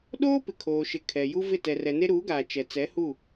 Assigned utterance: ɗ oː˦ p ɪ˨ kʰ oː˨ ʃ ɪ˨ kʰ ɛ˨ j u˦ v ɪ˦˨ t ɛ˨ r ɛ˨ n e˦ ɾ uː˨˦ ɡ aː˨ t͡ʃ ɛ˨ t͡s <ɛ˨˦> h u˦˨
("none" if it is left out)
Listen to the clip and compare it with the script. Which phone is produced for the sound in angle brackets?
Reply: ɛ˨˦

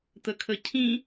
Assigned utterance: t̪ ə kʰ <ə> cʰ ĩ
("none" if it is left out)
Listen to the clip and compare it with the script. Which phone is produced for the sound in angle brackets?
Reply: ə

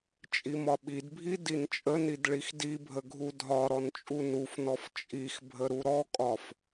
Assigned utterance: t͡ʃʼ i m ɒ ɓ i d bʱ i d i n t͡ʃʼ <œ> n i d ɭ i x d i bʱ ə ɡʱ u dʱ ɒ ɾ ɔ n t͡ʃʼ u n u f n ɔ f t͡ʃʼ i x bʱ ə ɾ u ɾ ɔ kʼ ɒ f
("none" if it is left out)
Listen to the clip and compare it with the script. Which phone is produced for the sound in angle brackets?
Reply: ə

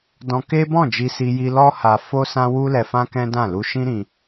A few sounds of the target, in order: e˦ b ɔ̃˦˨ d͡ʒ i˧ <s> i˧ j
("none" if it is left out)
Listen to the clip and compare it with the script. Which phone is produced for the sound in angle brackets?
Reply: s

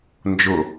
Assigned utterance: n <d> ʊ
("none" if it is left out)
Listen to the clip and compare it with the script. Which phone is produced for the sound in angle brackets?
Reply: d͡ʒ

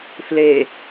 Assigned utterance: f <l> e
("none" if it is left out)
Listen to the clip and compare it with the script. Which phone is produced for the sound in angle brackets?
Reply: l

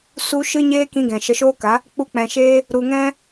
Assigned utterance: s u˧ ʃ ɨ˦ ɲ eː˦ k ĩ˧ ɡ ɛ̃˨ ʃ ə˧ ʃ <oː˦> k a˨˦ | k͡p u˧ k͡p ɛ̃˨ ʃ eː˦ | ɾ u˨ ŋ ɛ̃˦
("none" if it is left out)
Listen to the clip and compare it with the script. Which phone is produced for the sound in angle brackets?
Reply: oː˦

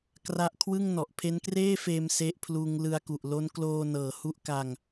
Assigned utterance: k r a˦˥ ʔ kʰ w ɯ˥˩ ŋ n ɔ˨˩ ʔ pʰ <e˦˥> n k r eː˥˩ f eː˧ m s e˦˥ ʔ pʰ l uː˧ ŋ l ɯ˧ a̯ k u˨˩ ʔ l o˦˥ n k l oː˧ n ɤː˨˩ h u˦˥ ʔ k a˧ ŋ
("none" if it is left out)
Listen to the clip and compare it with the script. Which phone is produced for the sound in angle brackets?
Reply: e˦˥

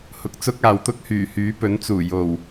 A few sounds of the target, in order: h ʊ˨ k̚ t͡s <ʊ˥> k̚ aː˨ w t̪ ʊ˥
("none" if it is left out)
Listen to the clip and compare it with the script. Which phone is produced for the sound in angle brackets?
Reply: ʊ˥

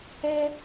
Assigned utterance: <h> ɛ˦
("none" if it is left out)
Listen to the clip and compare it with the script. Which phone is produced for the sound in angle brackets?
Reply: h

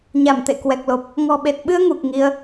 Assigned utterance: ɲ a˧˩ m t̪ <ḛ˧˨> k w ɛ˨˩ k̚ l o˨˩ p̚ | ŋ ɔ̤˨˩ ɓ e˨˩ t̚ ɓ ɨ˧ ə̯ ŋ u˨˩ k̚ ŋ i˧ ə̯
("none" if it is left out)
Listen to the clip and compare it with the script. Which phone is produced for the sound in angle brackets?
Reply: ḛ˧˨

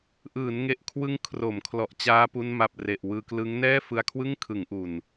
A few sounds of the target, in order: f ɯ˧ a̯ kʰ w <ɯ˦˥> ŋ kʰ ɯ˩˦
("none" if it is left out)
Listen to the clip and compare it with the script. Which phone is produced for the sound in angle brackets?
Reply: ɯ˥˩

